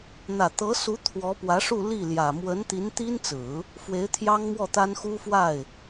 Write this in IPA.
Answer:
n̪ ä˨˩ t̪ ɤ˧˥ s u˧˥ t̪ʰ w ɔ˧˥ p w ä˧˥ ʂ u˥˧ l i˥˩ l j ä˨˩ m w ə˧˥ n t̪ i˧˥ n t̪ i˥ n t͡s ɹ̩˨˩˦ | f w e˧˥ ɪ̯ t̪ʰ j ɑ˥ ŋ m w ɔ˥˩ t̪ a˥ n x u˥ f w a˥˩ ɪ̯

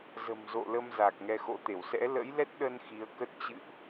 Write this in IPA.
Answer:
z ə̤˨˩ m z o̰˧˨ l ə˧ m z a˨˩ k̚ ŋ ɛ˧ x o̰˧˥ t̪ e˧˩ w s ɛ̰˧˥ l ə̰˧˥ j l ɛ˦˥ t̚ ɗ ə˧ n x i˨˦ ə̯ k ə˦˥ t̚ t͡ɕ ɨ̰˧˨ ʔ

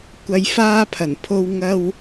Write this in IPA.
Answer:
kʷ ɐ˨ j f aː˧ pʰ ɐ˨˩ n pʰ o˧ w ŋ ɐ˧ w

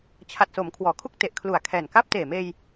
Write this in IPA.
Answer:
t͡ɕʰ a˨˩ t̚ s o˩˦ m kʰ w ɔː˩˦ kʰ u˥˩ k̚ t e˨˩ ʔ kʰ l u˨˩ a̯ kʰ ɛː˨˩ n k aː˥˩ p̚ t eː˨˩ m eː˧ j

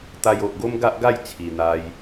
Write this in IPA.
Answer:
t̪ a˧ j o˨ ʔ ɡ o˦ m ɡ a˦ ʔ ɡ a˥˧ j t͡sʰ i˨˩ n̪ a˧ j

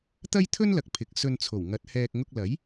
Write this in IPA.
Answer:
t̪ ɐ˥ j t̪ʰ ɵ˥ n l ɐ˨ k̚ pʰ ɪ˨˥ k̚ s ɵ˧ n t͡sʰ o˨˩ w ŋ ɐ˨˥ t̚ h ɛː˧ k̚ ŋ ʊ˧ k̚ l ɐ˨˥ j

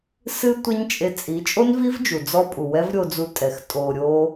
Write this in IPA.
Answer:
s ɨ˦ tʷ ɛ˦ ɲ t͡ʃʼ e˧ t͡sʼ i˨˦ t͡ʃʼ o˦ n v i˦ v d͡ʒ u˨ d͡z ɔ˧ pʼ u˨ w ɛ˦ v ɾʲ o˧ d͡z u˧ tʼ ɛ˨ x tʼ o˧ ɾʲ o˦

